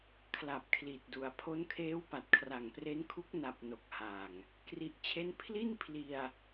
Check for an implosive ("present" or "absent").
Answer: absent